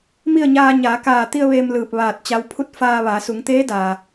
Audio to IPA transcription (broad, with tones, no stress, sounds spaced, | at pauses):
m i˥˨ ə̯ ɲ aː˧ ɲ aː˩˧ k aː˧˩ t̪ i˧ ə̯ ʋ eː˧ m l ɯː˧˩ p̚ ʋ aː˧˩ t̚ t͡ɕ a˧˥ w pʰ u˥˨ t̚ f aː˧ ʋ a˩˧ s u˩˧ ŋ t̪ eː˧˥ d aː˩